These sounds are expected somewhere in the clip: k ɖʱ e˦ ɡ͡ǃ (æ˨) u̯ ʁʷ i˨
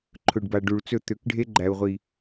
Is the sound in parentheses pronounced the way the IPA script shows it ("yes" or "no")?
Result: yes